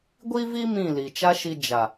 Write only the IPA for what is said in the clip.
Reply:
ɡʷ i˦ v i˦ m ĩ˦˨ l i˨ t͡ʃ a˧ ʃ i˨ d͡ʒ a˨

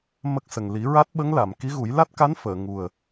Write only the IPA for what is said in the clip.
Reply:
m ə˦˥ k̚ s ə˨˩ ŋ l i˨˩˦ ɹ a˦˥ t̚ ɓ ə˧˥ ŋ l a˨˩˨ m k i˧˥ ɣ u˨˩˦ j l a˦˥ t̚ k a˧˥ n f əː˨˩˨ ŋ u˨˩ ə̯

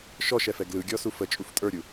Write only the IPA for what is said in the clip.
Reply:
ʃ ɔ ʃ ɛ f ɛ ɡ l ɯ ɡʲ ɔ s u f ə t͡ʃʼ u f tʼ ə˞ ɾʲ u

